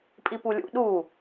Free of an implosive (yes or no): no